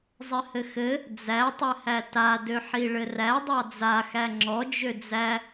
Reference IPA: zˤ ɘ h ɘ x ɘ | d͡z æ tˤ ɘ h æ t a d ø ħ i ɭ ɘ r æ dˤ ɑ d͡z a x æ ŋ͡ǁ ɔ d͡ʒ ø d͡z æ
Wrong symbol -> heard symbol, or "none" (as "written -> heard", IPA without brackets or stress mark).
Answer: none